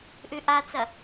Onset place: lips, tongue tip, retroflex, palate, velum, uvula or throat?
throat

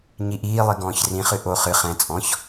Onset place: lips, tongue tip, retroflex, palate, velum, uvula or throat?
palate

